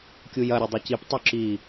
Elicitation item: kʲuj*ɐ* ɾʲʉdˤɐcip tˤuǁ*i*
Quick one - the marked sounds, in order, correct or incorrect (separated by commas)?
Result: correct, correct